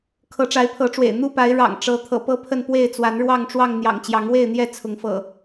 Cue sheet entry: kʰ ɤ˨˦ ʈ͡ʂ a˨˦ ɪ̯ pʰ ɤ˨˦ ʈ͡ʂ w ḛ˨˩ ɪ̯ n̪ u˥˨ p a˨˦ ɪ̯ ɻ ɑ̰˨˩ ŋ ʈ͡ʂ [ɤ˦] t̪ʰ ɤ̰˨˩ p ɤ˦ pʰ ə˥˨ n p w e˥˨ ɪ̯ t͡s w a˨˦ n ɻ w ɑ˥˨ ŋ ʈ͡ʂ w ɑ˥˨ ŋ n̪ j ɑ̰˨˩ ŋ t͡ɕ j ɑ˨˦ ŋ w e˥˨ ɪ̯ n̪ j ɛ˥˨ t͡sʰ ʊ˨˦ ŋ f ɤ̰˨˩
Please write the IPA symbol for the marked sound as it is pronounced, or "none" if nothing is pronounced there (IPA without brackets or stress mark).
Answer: ɤ˨˦